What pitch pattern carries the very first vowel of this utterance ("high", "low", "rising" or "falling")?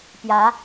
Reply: rising